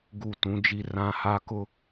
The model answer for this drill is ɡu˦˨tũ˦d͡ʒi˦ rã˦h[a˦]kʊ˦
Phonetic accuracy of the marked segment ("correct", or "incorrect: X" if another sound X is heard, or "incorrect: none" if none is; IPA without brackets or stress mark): correct